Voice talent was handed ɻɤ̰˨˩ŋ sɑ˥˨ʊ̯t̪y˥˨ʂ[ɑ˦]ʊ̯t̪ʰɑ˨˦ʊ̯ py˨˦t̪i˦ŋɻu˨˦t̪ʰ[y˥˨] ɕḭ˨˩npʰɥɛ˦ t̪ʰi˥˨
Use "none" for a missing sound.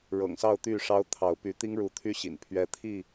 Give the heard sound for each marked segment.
ɑ˦, y˦

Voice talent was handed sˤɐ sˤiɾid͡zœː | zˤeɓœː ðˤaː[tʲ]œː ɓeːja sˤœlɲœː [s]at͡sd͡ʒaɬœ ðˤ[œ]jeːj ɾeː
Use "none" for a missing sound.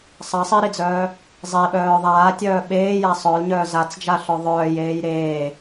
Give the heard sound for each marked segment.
tʲ, z, œː

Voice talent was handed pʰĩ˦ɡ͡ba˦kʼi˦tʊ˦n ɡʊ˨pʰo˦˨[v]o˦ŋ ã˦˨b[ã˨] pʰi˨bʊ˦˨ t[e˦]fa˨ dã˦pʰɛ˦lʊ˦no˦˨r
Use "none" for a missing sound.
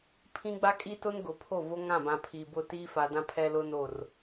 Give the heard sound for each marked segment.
v, ã˨, i˦

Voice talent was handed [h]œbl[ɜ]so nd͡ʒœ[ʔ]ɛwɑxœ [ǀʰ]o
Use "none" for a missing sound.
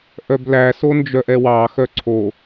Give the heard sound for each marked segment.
ʔ, æ, ʔ, ǀʰ

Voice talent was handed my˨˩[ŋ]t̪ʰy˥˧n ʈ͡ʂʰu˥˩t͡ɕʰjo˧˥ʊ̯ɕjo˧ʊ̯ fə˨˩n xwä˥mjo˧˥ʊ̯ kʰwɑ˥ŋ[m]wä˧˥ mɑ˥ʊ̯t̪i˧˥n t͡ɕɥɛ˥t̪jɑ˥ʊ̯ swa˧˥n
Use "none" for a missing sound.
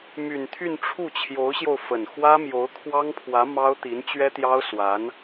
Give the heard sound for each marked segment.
n, pʰ

